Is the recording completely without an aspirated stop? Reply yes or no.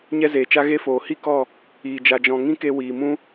yes